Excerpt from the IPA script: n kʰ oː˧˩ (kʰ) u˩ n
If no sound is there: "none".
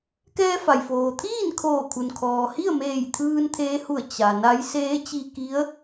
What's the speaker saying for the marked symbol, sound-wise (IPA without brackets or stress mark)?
kʰ